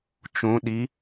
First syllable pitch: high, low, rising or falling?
rising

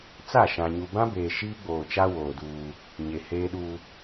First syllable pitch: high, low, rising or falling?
falling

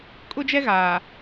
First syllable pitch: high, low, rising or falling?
high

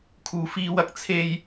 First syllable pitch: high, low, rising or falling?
low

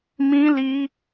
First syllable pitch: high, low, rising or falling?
high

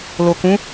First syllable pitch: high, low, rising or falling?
low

